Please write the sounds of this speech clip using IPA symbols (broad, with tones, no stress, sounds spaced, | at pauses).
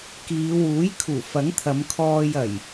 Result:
k iː˨˧ w uː˨˥ j kʰ uː˨˩ f ɐ˨˥ ŋ t̪ʰ ɐ˨˧ m kʰ ɔː˧ j ɐ˨˩ j